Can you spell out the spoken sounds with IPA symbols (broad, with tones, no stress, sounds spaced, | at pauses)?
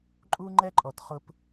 ǃʼ u˦ ŋ͡ǃ ɛ˦ ǃʼ ɔ˧ t χ ʊ˦ p